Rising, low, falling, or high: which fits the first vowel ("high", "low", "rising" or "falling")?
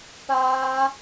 high